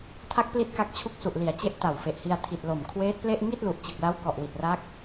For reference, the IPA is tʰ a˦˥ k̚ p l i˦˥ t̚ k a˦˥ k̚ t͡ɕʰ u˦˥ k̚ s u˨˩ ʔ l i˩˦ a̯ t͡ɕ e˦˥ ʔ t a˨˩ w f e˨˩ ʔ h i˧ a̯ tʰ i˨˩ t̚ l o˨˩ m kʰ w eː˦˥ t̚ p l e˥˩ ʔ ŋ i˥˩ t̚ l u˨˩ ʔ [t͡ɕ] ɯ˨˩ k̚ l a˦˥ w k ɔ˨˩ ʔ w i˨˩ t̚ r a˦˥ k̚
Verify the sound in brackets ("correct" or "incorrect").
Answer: correct